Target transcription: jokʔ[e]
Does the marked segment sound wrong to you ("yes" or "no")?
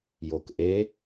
no